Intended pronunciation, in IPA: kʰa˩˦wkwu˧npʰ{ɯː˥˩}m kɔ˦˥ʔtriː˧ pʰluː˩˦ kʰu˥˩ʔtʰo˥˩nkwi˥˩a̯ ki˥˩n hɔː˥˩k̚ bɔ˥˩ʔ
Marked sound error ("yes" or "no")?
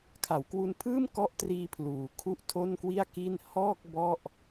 no